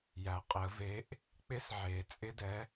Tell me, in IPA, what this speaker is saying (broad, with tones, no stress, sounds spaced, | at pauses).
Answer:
j æ˩ qʼ ɪ˨˩˦ ə̯ v e˨˥ ʔ | k͡p ɪ˦˥ s ʕ e˨˩˦ t͡sʼ ɪ˦˥ d ɛ˨˥